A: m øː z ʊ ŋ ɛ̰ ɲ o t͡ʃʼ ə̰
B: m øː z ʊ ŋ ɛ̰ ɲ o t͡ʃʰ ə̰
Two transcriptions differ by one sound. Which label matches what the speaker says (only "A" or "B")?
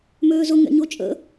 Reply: A